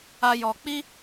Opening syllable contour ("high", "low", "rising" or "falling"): high